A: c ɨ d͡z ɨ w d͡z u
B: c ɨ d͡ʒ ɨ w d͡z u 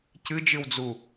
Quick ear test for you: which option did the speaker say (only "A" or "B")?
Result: B